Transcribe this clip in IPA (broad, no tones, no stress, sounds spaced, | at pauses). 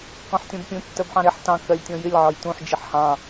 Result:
k ɔ̃ ħ tʲ ɔ̃ b pʲ ũ tː ɜ b ħ ɑ̃ ɾ ɪ ħ t ɑ̃ k ɜ lʲ tʲ ɔ̃ j ɪ lʲ ʕ ɒ j t ũ ħ d͡ʒ ɪ ħ h ɑ̃